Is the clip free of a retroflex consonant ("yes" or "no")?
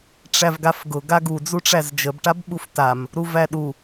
no